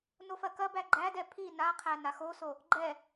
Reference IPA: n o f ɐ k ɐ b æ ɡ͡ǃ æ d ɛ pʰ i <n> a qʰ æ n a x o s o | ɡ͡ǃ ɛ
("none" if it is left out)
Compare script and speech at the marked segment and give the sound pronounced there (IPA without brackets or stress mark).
n